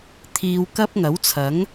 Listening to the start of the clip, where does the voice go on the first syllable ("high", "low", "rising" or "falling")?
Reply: low